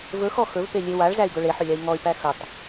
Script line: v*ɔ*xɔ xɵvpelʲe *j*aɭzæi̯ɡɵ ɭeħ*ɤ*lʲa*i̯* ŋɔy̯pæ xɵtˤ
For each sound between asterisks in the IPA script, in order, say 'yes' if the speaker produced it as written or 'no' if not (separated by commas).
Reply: no, no, no, yes